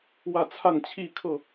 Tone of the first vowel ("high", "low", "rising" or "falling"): falling